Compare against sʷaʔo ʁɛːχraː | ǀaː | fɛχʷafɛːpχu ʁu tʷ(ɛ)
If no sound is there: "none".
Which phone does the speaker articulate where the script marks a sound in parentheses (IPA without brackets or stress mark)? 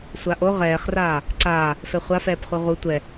ɛ